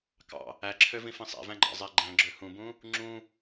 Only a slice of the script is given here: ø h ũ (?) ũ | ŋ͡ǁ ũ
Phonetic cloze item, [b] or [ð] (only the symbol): b